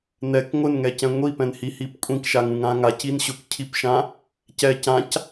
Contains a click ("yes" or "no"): no